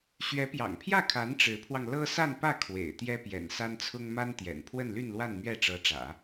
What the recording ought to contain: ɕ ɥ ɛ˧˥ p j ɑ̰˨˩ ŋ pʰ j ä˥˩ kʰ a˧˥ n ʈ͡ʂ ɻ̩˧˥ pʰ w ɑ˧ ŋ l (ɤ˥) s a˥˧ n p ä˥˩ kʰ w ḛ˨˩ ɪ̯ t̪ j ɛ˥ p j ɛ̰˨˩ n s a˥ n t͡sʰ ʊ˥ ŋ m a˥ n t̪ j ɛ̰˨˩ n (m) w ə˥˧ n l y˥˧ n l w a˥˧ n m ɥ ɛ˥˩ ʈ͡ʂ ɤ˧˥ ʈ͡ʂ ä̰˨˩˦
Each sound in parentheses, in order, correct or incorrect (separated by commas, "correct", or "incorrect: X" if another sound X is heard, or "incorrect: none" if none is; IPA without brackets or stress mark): correct, incorrect: pʰ